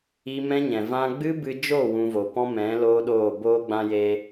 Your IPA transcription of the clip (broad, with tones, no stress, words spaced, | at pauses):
i˦ mɛ̃˦ɲɛ̃˨ vã˧ɡ͡bɨ˦bɨ˧d͡ʒo˦˨ wũ˦vo˧ pɔ̃˦mɛ̃˨˦ loː˦ɗoː˦˨ boː˧ɡ͡bã˧je˧